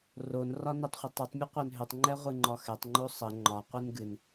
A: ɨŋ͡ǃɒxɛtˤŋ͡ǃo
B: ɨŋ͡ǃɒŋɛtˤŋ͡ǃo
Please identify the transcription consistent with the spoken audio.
A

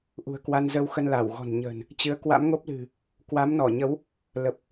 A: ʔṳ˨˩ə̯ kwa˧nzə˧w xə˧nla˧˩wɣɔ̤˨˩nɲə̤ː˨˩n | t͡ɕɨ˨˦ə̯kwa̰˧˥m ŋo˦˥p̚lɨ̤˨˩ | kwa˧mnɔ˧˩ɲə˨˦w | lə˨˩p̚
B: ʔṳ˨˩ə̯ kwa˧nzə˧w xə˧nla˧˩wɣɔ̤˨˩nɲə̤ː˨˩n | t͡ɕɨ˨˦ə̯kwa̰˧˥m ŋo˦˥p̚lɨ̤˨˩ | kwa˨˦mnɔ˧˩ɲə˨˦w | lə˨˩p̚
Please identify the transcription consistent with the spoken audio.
B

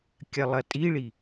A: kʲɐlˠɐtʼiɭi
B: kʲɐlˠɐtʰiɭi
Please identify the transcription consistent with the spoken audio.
A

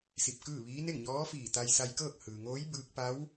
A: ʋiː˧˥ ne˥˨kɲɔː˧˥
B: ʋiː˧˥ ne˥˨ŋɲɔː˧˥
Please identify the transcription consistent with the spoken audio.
B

